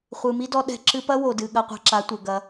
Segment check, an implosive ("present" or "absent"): present